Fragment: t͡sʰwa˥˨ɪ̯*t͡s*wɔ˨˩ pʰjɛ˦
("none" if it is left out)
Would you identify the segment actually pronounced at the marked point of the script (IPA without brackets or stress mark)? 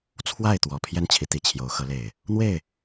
t̪